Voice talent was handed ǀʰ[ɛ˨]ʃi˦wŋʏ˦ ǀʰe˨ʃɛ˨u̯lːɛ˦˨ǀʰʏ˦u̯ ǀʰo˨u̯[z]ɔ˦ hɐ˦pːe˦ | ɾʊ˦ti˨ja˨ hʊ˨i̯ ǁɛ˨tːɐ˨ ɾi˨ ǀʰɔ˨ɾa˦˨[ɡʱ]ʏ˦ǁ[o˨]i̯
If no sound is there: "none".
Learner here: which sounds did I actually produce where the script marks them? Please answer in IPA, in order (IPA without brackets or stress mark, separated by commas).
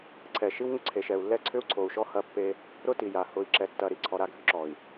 ɛ˨, ʃ, ɡʱ, ɔ˨